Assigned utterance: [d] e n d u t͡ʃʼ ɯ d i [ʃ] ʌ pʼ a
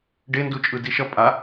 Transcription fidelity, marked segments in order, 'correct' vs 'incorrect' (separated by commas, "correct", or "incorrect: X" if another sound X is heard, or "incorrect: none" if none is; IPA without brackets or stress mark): incorrect: ɖ, correct